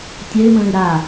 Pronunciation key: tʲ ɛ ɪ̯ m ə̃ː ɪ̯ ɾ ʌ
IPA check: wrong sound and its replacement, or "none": ʌ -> a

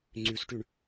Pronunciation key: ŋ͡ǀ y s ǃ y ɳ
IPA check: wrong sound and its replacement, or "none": ǃ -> ʈ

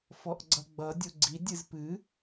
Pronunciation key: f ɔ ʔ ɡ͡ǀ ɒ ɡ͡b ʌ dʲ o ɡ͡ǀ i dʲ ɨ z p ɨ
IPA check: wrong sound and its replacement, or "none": ɒ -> ʌ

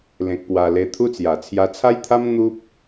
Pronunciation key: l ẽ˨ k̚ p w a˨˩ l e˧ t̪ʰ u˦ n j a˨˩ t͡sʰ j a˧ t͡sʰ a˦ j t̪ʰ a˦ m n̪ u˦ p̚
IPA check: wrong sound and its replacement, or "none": n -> t͡s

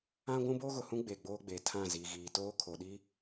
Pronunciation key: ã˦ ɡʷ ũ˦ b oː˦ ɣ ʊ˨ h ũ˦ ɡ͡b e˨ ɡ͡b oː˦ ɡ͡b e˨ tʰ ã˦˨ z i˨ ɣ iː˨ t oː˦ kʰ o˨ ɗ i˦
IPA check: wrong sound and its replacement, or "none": none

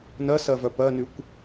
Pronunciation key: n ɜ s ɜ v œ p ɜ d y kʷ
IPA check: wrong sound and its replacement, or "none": d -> n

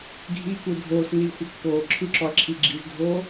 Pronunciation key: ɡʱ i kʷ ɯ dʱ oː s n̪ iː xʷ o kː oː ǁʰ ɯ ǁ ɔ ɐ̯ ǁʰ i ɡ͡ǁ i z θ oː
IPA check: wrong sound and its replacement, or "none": θ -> dʱ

